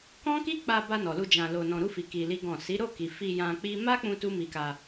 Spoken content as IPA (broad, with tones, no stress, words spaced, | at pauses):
kɔ̃˦ki˦k͡pa˧ba˧ nɔ˨lu˧ d͡ʒã˧lo˧nɔ̃˧ ɾu˧fi˨ ki˧li˦ɡɔ̃˦˨ si˨˦ ɾo˦˨ki˨ fi˧ jã˧k͡pi˦ ma˦k͡pũ˧ tu˦mi˧ka˧